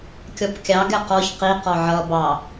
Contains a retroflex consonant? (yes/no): no